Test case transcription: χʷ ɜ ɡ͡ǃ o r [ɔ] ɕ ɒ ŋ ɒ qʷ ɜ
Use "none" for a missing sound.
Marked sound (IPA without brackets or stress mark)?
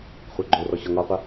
ɔ